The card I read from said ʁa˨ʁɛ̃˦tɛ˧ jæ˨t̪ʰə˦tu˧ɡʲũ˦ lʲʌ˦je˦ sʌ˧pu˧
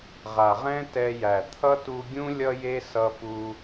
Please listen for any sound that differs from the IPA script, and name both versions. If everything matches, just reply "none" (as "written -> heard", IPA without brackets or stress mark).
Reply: ə˦ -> ʌ˦